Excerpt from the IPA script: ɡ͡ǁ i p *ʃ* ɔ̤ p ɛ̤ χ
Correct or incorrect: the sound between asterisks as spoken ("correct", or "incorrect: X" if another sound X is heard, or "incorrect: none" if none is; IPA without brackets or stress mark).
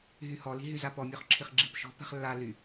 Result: correct